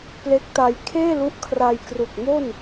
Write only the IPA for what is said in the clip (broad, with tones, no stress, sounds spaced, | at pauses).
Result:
p l e˦˥ k̚ t a˧ j kʰ eː˥˩ l u˦˥ ʔ kʰ r a˧ j k r u˨˩ k̚ m o˥˩ n